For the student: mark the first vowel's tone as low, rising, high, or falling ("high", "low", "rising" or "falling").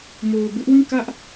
low